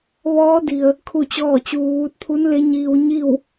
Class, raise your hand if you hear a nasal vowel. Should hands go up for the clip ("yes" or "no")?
no